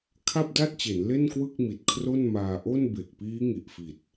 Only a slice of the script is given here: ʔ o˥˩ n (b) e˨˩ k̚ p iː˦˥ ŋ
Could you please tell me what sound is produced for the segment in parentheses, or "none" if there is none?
b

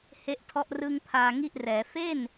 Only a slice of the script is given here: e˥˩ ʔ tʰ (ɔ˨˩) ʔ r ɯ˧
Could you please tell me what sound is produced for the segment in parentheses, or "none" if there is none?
ɔ˥˩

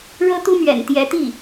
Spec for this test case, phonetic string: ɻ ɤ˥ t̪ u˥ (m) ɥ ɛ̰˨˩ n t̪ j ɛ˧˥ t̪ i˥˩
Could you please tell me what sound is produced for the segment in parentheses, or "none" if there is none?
m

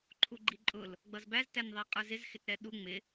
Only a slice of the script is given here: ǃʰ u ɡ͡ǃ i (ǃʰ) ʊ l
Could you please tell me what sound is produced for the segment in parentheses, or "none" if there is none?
ǃʼ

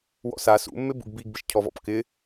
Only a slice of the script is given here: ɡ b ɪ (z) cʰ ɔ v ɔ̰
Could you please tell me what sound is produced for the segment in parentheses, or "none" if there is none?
ʃ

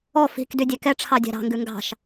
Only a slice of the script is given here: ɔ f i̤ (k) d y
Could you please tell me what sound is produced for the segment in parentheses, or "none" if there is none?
k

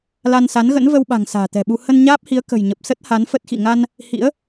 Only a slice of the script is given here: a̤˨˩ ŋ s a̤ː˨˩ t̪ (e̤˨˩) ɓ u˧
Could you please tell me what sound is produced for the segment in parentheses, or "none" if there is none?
ɛ̤˨˩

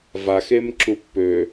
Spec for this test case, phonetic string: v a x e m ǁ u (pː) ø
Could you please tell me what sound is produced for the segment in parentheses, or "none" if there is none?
pː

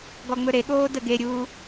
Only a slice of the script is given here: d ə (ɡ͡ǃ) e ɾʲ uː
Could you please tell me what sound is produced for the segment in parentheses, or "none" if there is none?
ɡ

